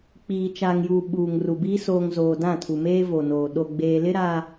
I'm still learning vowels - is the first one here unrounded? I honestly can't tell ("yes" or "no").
yes